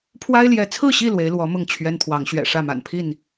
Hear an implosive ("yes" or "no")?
no